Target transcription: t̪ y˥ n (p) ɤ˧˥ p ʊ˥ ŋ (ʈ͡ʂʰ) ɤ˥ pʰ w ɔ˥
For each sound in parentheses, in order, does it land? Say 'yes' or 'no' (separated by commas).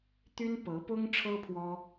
yes, yes